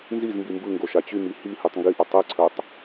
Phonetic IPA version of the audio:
n z i z m b i m b ɯ ŋ ɡ o ʃ a t͡ɕ y m i h i h y tˤ ŋ ɡ i ʔ ʊ tˤ e ǀʰ œ tˤ

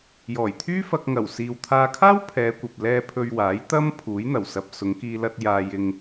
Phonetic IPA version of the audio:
j ɔː˨˩ j t̪ʰ yː˥ f ɐ˧ k̚ ŋ ɐ˨˩ w s iː˨ w t̪ʰ aː˧ kʰ aː˥ w pʰ ɛː˨˧ kʷ ɐ˨ p̚ l ɛː˧ pʰ ɵ˧ ɥ w aː˨˥ j t̪ ɐ˥ m pʰ uː˨˥ j n̪ ɐ˨˩ w s ɐ˧ p̚ s ʊ˨˧ ŋ k iː˧ l ɐ˧ t̚ j aː˨ j ɪ˨ ŋ

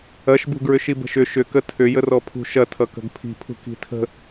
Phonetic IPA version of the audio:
ɐ ʃ b ṳ ɡ ɹ ʏ ʃ i b ə̤ ʃ ʏ ʃ ʏ k ə tʰ ʏ j ə r ɔ pʰ ṳ ʃ ɐ tʰ ʌ k ə̤ ɡ pʰ i̤ pʰ ṳ k i̤ tʰ ə̤

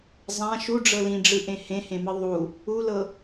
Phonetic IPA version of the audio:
zˤ ã ʃ u ɖ͡ʐ ɤ l ĩ ɖ͡ʐ ɯ ʔ ẽ h ẽ h ẽ m ɯ ðˤ u | u l ɤ

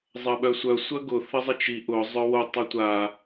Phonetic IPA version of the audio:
zˤ ɐ ɓ œ sʷ œ sʷ ɐ ɡ ʊ θ ə zˤ ə t͡ʃ i ʔ ʊ zˤ œ w o tˤ ɐ tʷ a

